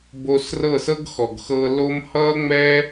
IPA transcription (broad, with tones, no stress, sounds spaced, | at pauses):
b o˧ s r ɤ˦˨ s ɤ˦ ɡ x ɔ˨ ɡ x ɤ˧ l o˦ m h ʌ˦ ŋ͡m ɛ˦